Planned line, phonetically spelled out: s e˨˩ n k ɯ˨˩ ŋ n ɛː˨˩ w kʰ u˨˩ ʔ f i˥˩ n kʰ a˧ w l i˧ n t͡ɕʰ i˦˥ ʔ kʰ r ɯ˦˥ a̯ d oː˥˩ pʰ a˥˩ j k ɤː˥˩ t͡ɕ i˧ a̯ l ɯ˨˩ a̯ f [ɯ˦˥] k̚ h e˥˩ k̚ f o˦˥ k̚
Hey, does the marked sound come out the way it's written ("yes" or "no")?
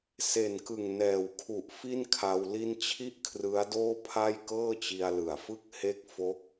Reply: no